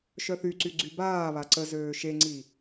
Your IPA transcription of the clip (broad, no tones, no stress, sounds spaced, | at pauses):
ʃ œ θ y ǀ y ɡ͡ǀ y b aː β a ǀ ə z øː ʃ e ŋ͡ǀ i